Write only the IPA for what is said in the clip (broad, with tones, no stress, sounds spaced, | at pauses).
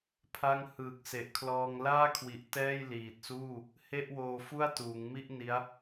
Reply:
pʰ a˥˩ ŋ h ɯː˨˩ k̚ s e˨˩ ʔ kʰ l ɔː˧ ŋ l aː˥˩ kʰ w i˨˩ ʔ t ɛː˥˩ j l iː˨˩ t̚ s uː˥˩ | h e˥˩ ʔ w oː˧ f u˥˩ a̯ t uː˩˦ ŋ m i˥˩ ʔ n i˦˥ a̯